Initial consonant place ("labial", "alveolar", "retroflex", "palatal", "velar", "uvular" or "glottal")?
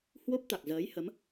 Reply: glottal